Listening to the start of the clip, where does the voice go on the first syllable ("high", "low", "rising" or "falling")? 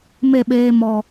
falling